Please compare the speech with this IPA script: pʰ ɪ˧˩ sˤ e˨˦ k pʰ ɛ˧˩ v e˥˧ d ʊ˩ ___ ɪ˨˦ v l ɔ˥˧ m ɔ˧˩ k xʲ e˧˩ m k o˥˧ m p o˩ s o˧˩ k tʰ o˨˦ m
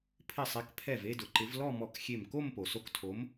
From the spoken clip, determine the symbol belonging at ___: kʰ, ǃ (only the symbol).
ǃ